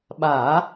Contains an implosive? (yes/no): yes